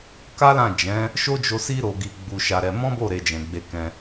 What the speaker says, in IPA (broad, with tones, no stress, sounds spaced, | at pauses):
k a˦ l ã˦˨ d͡ʒ ɛ̃˨˦ | ʃ o˦ d͡ʒ o˧ s i˧ ɾ o˨ ɡ i˧ ɡ͡b u˧ ʃ a˧ ɾ ɛ˧ m ɔ̃˦ b o˦˨ ɾ e˧ d͡ʒ ɛ̃˨ ɡ͡b e˧ k ɛ̃˧